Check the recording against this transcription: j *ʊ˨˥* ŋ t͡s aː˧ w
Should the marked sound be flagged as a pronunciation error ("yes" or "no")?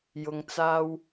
yes